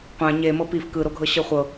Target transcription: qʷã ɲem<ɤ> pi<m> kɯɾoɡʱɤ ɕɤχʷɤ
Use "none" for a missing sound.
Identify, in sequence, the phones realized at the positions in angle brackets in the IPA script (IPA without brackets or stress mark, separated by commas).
ɤ, f